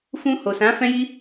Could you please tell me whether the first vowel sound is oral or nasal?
nasal